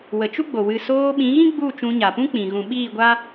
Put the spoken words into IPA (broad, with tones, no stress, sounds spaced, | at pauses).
w ə˨ t͡ʃ u˦ ɡ͡b o˨ w ɨ˨ s oː˧ ɓ ĩ˨˦ ɣ ĩ˦ ɡ͡b u˦˨ t͡ʃ ũ˧ ɲ a˨ p ũ˦ k͡p ĩ˨ ɣ ũ˨ ɓ iː˦˨ ɡʷ a˦